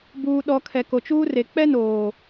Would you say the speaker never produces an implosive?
no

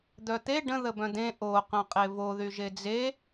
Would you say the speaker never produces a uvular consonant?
no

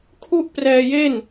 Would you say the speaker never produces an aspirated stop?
no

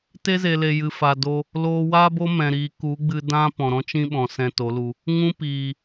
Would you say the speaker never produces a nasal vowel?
no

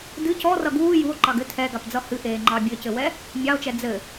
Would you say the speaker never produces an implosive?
yes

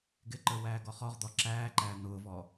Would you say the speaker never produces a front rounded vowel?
yes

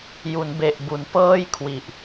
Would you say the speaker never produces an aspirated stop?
no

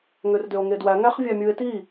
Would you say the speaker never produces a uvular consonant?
no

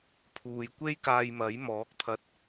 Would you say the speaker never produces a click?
yes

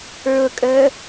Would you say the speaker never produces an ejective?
no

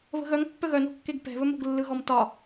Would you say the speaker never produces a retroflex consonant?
yes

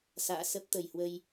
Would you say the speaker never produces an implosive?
yes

